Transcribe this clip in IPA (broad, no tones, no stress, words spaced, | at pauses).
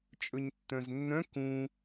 t͡ʃʼɵɲtːœ̃znːœ̃ kũ